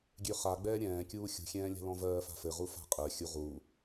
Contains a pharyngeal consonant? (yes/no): no